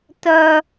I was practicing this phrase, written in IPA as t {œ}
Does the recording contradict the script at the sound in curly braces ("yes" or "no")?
no